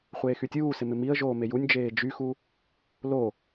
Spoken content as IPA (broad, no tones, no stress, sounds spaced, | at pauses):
χʷ eː x y tʲ uː s ɪ m ɪ m i ə̯ ʒ oː m e j u nʲ d͡ʒ eː d͡ʒ y x u | l o